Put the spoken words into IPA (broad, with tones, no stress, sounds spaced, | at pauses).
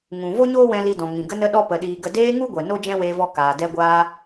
ŋ ũ˨ v o˦ ɲ oː˦ w ɛ̃˧ l i˧ d ɔ̃˨ ŋ ĩ˨ ɡ ə˧ n ə˧ ɗ ɔ˧ p ə˨ ɗ iː˨ ɡ ə˧ d eː˧ ŋ u˦ ɡʷ ɛ˨ n o˦ d͡ʒ ɛ̃˦ w eː˧ v ɔ˧ k aː˨ d ɛ˧ ɡʷ aː˧